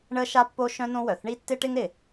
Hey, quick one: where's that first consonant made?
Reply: retroflex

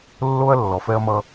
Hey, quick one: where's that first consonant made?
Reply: tongue tip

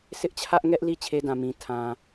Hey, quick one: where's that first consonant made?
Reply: tongue tip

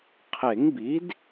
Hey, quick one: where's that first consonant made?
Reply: uvula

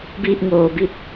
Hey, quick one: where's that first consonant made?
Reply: lips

